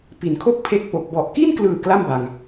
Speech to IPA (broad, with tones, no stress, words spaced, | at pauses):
pi˩˦nkʰo˥˩k̚ pʰe˦˥k̚po˨˩k̚ bɔ˨˩ʔki˥˩nklɯː˨˩ kla˥˩mba˨˩ŋ